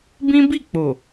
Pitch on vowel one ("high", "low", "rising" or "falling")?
high